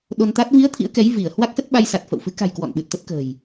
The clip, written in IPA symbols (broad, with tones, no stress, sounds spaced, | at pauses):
ɗ o˧ n t̪ a˦˥ t̚ v i˨˦ ə̯ t̪ʰ ḭ˧˥ ə̯ k ɛ˨˦ j v i˧˩ ə̯ h w a˦˥ k̚ s ə˦˥ t̚ ɓ a˧ j s a˨˩ t̚ f ə̰˧˨ w f ɨ˨˦ k a̤˨˩ j k w ɔ̰˧˨ n ɓ ɨ˨˩ t̚ t̪ ə˦˥ t̚ k ə̤ː˨˩ j